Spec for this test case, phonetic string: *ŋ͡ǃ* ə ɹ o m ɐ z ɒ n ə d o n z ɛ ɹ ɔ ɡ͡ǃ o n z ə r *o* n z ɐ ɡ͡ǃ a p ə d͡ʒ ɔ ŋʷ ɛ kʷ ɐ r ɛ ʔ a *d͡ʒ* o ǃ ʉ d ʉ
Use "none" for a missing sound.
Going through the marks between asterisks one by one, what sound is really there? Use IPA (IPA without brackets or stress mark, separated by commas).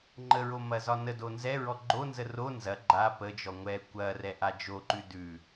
ŋ͡ǃ, o, d͡ʒ